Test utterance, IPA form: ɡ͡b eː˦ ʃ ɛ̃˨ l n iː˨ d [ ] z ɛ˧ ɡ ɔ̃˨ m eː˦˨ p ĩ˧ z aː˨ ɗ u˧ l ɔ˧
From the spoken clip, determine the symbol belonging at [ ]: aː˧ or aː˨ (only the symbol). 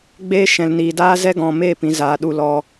aː˧